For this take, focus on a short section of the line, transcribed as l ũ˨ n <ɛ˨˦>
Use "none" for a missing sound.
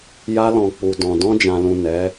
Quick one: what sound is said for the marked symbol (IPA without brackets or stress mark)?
ɛ˨˦